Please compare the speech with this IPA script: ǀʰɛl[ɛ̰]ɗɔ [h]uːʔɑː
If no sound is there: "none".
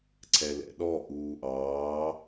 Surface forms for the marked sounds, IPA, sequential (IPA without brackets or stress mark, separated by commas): ɛ̰, ʔ